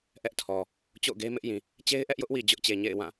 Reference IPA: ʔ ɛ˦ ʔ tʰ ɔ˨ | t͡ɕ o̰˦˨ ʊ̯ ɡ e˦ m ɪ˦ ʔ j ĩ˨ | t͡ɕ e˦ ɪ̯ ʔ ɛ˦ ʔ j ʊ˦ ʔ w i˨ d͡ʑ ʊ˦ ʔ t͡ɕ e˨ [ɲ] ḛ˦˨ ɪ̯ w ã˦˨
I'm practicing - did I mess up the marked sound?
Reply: no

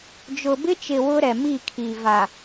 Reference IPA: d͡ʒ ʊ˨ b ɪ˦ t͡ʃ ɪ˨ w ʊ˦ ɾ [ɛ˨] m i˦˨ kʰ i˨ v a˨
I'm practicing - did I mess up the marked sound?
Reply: no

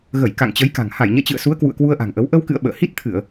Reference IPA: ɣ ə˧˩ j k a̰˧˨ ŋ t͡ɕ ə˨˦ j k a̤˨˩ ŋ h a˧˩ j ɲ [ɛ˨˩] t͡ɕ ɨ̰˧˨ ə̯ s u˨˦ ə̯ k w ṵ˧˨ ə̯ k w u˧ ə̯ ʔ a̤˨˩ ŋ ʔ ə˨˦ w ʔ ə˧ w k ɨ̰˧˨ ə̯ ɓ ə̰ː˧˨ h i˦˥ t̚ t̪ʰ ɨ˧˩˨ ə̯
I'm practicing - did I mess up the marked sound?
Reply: yes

